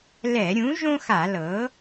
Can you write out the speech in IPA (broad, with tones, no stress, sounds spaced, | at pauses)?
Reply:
l ɛ˧˩˧ ɾʲ ũ˩˥ ʒ õ˥ x a˧˩˧ l ɤ˩˥